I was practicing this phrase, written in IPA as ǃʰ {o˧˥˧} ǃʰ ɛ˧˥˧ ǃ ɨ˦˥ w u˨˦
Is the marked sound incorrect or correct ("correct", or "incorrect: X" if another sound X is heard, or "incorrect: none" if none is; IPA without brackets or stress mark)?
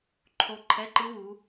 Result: incorrect: o˦˥